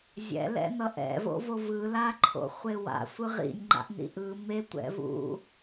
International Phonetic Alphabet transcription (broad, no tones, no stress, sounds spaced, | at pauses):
zʲ ɛ̰ l ɛ̰ n ʌ ʔ ɛ̰ v o̰ v o v ɯ l a ǃʰ o̰ χʷ e w a̰ sʷ ɯ ʁ ḭ nʲ ŋ͡ǃ a̰ ʔ n ḭ ʔ ɯ m e tʷ ɛ̰ v ṵ